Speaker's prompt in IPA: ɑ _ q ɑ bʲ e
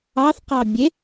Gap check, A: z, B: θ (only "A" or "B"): B